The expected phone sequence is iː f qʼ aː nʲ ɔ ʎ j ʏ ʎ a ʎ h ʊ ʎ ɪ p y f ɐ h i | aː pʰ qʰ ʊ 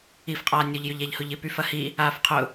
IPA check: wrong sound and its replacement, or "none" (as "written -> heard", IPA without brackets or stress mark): pʰ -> f